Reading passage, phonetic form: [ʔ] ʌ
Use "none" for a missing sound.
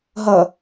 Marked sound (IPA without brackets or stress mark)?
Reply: ɦ